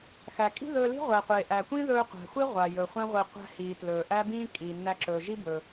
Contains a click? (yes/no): yes